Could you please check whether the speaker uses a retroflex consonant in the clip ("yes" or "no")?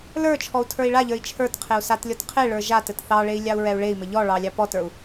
yes